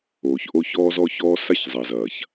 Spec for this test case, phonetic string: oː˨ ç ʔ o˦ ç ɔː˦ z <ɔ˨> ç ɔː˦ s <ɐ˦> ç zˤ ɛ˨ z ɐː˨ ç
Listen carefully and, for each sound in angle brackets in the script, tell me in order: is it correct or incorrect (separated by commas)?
incorrect, incorrect